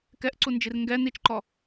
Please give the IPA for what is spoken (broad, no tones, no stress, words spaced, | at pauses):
kɛʔǀund͡ʒir ŋɡɛ nit͡ʃǃɔ